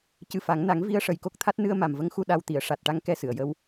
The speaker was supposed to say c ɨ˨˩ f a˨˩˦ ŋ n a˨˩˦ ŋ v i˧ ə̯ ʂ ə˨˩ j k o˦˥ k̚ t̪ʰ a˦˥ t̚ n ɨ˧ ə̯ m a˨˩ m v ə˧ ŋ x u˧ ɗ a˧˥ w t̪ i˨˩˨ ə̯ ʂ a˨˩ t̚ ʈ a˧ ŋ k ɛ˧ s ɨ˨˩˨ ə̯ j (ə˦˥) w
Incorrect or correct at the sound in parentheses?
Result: incorrect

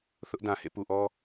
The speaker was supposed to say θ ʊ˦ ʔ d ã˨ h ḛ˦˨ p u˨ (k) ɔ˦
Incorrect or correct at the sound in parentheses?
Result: incorrect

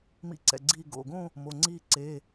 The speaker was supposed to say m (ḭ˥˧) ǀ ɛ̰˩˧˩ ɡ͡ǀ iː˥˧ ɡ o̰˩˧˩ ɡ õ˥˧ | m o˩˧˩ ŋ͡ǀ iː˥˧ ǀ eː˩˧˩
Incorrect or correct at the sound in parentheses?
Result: correct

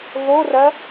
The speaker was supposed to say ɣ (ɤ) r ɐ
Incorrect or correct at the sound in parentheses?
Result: incorrect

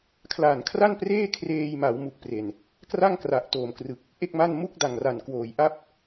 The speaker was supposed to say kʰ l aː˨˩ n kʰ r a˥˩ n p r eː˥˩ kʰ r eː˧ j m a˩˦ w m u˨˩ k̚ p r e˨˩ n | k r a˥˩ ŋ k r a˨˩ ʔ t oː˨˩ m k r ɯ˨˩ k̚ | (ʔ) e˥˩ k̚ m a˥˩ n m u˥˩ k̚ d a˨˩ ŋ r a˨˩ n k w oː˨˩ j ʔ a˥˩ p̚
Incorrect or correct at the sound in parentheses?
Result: correct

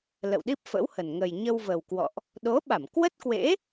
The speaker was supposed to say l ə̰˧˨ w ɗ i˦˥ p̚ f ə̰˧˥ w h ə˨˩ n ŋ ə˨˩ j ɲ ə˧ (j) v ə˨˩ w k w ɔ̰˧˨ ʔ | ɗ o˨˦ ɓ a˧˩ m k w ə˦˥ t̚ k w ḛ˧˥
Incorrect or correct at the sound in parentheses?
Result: incorrect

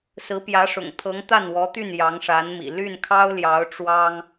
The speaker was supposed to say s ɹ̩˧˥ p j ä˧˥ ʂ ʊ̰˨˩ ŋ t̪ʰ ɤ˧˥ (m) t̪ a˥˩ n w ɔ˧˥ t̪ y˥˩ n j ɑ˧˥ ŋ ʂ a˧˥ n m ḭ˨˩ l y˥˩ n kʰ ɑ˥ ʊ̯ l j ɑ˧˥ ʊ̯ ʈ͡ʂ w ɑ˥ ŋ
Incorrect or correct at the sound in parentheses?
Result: incorrect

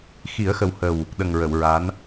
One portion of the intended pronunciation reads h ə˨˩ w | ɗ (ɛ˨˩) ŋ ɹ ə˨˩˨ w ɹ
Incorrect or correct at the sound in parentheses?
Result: incorrect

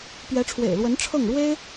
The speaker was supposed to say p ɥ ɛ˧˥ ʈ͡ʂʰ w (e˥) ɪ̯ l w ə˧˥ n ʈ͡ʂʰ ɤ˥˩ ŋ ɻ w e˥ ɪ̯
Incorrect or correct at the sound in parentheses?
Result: incorrect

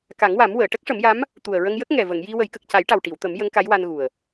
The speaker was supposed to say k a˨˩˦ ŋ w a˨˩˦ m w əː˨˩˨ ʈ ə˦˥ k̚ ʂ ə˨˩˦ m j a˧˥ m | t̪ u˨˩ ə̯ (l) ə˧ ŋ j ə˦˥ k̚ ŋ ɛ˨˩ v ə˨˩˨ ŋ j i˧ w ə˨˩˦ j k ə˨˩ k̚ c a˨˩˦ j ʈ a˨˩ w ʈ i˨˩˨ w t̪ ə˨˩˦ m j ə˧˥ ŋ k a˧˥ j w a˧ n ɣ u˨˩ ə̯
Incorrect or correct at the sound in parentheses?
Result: incorrect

